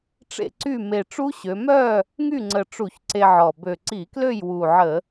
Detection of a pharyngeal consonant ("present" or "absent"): present